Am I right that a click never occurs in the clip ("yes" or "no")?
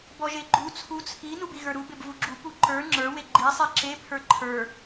no